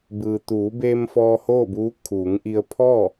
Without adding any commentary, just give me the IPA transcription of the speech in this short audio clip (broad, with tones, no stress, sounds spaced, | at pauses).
b ɯː˩ t̪ uː˩˧ b eː˧ m f ɔː˧ h oː˥˨ b uː˧˥ kʰ uː˩˧ ŋ ʔ i˧ ə̯ pʰ ɔː˥˨